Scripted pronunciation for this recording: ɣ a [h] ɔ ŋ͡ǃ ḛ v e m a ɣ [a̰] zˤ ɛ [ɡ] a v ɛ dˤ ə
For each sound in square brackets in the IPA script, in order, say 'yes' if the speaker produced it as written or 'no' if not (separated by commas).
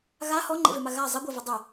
yes, no, no